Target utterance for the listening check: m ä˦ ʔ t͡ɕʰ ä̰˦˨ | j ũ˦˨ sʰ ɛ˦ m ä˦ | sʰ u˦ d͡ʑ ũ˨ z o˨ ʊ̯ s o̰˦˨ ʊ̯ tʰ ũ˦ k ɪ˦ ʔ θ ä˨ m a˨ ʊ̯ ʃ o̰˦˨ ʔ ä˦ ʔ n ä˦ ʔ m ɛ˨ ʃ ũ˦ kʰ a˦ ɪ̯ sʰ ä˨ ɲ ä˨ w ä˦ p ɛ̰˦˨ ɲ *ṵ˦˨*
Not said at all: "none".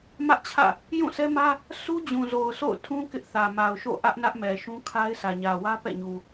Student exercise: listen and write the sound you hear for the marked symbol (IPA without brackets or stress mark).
u˨